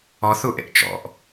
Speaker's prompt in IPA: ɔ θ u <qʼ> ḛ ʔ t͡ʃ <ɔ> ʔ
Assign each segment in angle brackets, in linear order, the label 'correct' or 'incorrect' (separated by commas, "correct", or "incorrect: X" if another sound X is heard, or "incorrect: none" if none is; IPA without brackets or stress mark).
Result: incorrect: ʔ, incorrect: ɔ̰